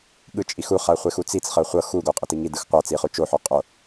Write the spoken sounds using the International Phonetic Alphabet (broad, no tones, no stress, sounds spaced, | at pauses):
ɠ ɯ t͡ʃʼ i x u χ a χʷ e x u t͡s i t͡s χ ɤ χʷ ɤ x u ɡ o qʼ e t i ŋ i d ɯ x qʷ a t͡s i χ u t͡ʃ o ħ o qʼ o